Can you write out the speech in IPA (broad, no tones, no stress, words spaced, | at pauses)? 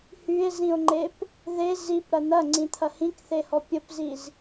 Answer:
hye̯zĩo̯ŋ͡ǃep | ðe zipɾɐ n̪ɐŋ͡ǀĩt̪ʰɐ hĩkθehɔ pʲəpziz